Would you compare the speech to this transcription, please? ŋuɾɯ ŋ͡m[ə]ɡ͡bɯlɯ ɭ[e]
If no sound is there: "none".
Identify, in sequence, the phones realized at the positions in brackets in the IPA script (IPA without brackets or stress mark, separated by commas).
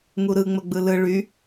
ə, y